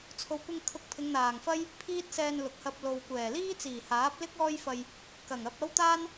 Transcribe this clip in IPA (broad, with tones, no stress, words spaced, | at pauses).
t͡sʰo˨wkʷɪ˧ŋ kʰʊ˧k̚pʰɪ˨˧ŋn̪aː˨˩ŋfɐ˥j | pʰiː˥t̚sɛː˧n lʊ˨k̚hɐ˧p̚ lo˨wkʷɛː˨˩ liː˥t͡siː˨˩haː˨˥p̚lɪ˥k̚ ɔː˥jfɐ˧j | kɐ˨˩ŋɐ˧p̚ ɐ˥wt̪aː˥n